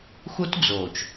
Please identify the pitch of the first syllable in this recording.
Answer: high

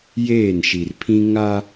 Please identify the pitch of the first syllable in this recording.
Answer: falling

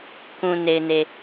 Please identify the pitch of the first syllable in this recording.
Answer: low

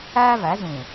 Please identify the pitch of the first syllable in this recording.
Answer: high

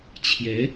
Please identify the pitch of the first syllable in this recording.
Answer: rising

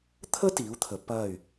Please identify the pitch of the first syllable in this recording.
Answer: high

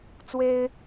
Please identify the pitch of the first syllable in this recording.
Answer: high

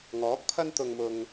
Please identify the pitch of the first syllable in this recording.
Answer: rising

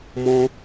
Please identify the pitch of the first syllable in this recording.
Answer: high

